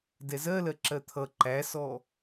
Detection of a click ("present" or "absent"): present